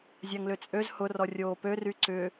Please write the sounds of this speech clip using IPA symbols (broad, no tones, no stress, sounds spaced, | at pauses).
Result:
zʲ a ŋ l ʏ t͡sʼ ø z h ʊ r ɔ rʲ oː p ø r y ǀ ʏ